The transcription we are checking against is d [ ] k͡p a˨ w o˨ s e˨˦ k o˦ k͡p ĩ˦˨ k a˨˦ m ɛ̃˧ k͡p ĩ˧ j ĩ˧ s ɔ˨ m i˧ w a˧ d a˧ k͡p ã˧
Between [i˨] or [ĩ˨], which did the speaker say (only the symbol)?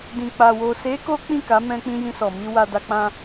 ĩ˨